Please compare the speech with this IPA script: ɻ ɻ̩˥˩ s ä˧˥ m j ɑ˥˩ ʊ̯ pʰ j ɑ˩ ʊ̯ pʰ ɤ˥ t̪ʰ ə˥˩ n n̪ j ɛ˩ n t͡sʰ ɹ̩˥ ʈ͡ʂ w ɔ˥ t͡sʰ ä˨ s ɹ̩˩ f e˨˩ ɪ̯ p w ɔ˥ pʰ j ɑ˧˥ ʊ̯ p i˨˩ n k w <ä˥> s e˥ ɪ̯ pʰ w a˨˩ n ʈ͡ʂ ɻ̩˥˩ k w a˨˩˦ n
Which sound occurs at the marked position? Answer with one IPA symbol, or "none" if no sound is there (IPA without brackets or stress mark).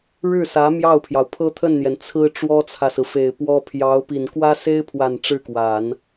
ä˥